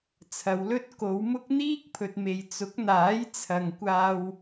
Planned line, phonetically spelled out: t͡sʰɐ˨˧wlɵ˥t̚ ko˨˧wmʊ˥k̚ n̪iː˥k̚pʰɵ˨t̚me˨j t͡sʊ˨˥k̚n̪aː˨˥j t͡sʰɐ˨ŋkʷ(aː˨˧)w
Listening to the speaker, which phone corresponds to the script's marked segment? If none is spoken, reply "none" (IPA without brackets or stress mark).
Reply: aː˧